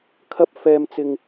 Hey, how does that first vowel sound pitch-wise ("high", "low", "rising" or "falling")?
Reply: high